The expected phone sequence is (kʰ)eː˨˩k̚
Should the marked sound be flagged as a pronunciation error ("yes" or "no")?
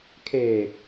no